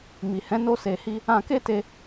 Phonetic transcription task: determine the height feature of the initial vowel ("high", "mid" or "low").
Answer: high